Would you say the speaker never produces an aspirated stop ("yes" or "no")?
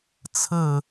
no